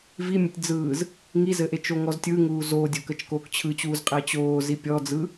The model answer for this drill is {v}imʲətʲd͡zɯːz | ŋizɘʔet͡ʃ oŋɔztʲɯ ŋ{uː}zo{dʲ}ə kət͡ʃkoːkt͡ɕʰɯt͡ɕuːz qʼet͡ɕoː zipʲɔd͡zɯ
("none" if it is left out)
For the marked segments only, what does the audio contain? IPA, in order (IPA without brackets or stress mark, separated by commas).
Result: v, uː, dʲ